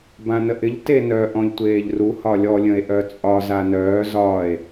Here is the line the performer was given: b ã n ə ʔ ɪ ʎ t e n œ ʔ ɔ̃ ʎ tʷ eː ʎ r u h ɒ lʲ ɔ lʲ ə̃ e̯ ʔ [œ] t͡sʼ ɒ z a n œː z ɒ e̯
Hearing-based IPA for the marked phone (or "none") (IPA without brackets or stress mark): œ